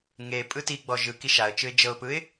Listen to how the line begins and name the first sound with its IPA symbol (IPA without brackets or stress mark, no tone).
ŋ